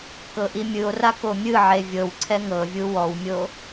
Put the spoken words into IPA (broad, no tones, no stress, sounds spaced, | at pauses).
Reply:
k ɤ ʔ i mʲ ɯ o̯ r a k o mʲ ɯ ʕ e vʲ ɤ w ǀʰ ɛ ŋ ɤ vʲ u w ɔ w mʲ o